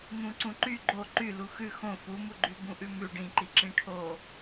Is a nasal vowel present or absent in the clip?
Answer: present